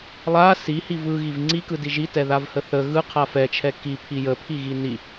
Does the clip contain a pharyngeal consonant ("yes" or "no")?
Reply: no